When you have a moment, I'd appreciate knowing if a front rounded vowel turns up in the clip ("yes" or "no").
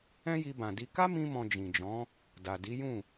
no